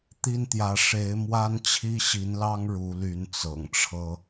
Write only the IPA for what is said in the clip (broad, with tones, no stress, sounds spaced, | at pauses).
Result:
t̪ i˥˩ n t̪ j ä˧˥ ʂ e˧˥ ɪ̯ m w a˥ n t͡ɕʰ i˥ ɕ i˧˥ n l ɑ˥ ŋ ɻ u˧˥ l y˧˥ n t͡s ɤ̰˨˩ ŋ ʈ͡ʂʰ ɤ˥